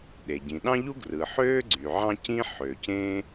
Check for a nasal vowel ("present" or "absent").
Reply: present